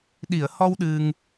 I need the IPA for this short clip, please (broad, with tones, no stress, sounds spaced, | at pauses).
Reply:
ɗ i˨˩˨ ə̯ h ɔ˧ w ɗ ɨ˧ ŋ